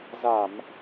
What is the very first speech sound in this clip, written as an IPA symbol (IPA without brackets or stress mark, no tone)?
z